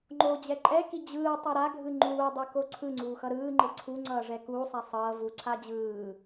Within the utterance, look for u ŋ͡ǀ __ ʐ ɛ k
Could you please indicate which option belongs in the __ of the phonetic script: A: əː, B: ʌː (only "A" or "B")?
B